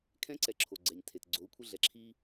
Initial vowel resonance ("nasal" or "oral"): nasal